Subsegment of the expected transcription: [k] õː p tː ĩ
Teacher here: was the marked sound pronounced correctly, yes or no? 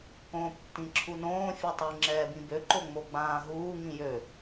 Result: yes